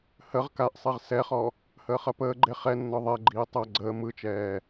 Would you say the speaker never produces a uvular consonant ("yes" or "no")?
no